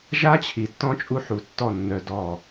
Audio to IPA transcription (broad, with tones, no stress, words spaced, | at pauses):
ʒa˦t͡ɕʰi˨tːɔ̃˦ t͡ʃʼu˦ħu˨˦tːɔ˦˨ nːœ˨ dɔ˦˨